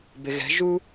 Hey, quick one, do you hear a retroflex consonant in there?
no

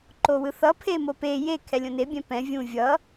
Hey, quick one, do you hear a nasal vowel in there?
yes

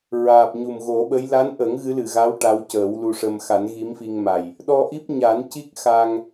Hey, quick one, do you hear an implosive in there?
yes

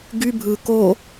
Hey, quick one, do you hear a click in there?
no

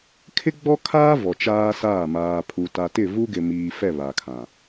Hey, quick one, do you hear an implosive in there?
no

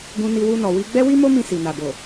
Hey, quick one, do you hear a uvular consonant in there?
no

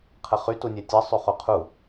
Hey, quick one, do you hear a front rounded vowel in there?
yes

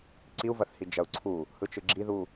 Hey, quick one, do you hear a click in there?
yes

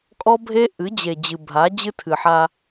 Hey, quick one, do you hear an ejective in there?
yes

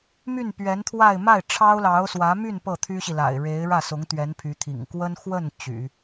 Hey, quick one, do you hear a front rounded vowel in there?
yes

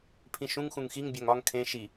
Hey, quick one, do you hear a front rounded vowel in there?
no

